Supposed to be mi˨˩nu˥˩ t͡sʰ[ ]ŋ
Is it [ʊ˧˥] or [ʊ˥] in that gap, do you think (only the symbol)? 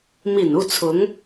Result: ʊ˧˥